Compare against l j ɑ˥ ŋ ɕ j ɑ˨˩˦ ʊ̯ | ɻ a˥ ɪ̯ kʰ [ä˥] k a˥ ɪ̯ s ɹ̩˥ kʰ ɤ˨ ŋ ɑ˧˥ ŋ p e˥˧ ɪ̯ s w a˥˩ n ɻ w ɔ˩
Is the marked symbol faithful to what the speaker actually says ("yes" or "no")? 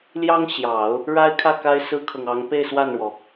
no